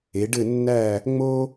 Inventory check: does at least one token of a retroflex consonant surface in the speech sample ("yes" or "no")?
yes